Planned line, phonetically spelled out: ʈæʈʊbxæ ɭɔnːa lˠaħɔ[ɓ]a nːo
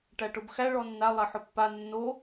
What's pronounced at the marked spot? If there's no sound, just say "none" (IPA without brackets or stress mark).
pː